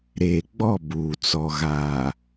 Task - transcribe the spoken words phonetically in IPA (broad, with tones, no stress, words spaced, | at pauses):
ɾeː˨ɡ͡bɔ˦˨ buː˨ t͡sɔ˨ɣaː˨